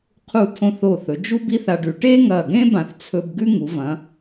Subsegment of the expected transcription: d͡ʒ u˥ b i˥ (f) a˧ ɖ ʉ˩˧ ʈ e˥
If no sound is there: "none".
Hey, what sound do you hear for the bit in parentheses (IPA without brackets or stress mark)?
θ